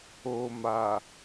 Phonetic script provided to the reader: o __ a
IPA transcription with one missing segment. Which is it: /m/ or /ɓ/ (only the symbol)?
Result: m